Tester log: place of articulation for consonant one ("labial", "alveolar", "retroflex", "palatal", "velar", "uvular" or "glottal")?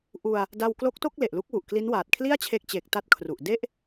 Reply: glottal